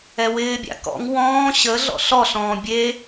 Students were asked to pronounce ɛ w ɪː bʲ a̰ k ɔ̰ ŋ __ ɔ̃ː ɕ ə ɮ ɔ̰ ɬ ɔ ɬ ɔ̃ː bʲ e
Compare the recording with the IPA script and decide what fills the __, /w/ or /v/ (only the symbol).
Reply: w